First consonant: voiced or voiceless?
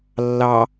voiced